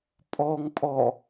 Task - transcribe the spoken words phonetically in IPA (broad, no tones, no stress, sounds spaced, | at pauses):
pʼ ɔ ŋ pʼ ɔ